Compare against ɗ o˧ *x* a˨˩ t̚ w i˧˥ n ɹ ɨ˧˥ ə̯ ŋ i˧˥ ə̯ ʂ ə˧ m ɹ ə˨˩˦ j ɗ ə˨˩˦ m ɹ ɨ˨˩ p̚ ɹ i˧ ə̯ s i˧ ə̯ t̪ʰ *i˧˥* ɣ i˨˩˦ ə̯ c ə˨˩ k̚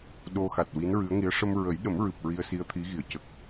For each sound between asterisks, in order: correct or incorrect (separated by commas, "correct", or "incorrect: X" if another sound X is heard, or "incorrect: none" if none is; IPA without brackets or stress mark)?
correct, correct